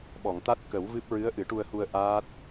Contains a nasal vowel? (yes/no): no